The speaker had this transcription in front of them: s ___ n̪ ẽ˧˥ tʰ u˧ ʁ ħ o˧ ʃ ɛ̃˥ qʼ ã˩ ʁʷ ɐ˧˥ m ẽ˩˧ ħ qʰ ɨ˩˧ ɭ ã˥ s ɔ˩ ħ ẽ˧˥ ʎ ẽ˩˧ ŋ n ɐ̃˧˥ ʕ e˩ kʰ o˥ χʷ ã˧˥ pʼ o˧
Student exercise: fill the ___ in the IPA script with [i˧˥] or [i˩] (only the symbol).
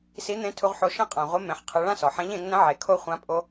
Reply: i˧˥